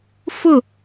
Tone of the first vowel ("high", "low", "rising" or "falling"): falling